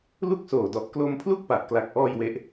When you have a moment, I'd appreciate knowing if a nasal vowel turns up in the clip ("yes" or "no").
no